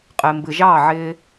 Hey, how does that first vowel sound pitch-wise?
low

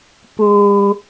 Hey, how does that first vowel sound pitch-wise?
low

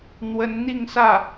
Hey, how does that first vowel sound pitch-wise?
rising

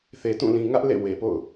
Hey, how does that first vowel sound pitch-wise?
low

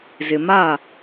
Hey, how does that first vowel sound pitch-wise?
low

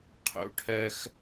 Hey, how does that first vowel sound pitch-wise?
rising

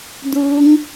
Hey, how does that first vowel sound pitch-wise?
rising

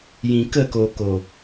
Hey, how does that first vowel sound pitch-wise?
low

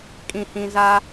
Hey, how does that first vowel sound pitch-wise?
low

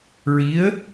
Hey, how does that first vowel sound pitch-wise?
rising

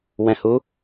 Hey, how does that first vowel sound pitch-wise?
low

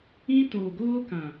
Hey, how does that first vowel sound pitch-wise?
high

